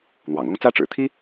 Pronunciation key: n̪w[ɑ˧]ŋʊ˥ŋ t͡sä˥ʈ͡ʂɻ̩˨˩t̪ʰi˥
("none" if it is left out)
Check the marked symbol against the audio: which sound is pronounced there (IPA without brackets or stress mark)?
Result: ɑ̰˨˩